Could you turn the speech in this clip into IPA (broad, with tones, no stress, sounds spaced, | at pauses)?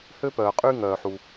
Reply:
h ø˥ p œː˩ qʼ y˥ ŋ œː˩ ħ u˩